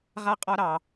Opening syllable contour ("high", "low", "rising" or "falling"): high